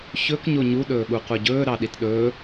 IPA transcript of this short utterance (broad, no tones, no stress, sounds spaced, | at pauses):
ç ɵ k ɲ o ɲ u ɗ ɵː ɠ u qʷ ʌ ɟ ɵː ɾ ɑ ɗ i t ɗ ɵː